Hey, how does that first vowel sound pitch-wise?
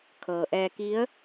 low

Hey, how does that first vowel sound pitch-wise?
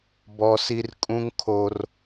high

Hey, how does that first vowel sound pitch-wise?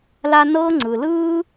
high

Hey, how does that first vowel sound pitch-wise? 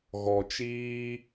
low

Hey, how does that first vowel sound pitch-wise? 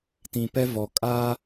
low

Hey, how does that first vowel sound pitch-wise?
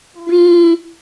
high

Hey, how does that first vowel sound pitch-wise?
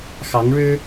rising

